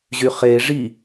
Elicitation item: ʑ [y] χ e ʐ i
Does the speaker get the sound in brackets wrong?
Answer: no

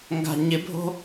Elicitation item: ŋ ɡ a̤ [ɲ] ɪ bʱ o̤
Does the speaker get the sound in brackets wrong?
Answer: no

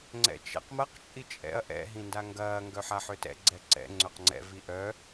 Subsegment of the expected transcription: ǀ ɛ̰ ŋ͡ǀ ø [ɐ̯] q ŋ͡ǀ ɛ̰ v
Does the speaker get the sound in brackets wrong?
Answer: yes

